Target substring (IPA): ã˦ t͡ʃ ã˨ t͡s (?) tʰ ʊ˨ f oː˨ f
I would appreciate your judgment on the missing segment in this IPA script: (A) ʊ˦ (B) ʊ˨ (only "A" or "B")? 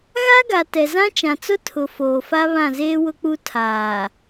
A